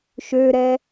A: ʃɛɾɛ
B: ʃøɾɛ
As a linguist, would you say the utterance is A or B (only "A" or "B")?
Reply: B